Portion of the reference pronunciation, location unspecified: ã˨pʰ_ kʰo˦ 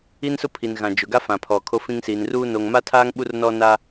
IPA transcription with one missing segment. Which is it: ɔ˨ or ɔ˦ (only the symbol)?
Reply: ɔ˨